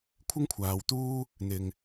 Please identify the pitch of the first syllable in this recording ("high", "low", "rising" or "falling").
high